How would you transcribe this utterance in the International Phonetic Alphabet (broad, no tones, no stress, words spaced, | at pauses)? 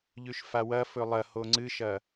ʎʉʃfawɐfɵ lˠɐho ŋ͡ǀɨʃɐ